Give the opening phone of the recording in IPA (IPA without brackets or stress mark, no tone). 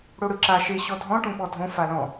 ɽ